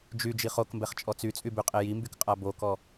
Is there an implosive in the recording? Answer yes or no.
no